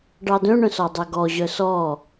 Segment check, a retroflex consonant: present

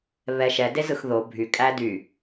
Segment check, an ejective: present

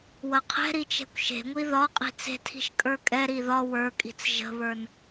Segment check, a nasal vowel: absent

